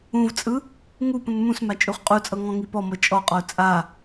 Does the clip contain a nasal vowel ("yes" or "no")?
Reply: yes